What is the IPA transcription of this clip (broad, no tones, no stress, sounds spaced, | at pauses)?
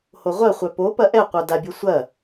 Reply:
h o ʁʷ ɐ χʷ œ p o p ɐ ʔ ɛ qʷ œ d a bʲ o sʷ ɐ